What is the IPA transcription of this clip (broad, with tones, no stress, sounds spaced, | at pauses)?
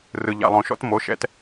r ɯ˧ ʎ a̰˧ lˠ õ˧ ʃ ɔ̰˦˥ t m o˦˥ ʃ ɛ̰˦˥ t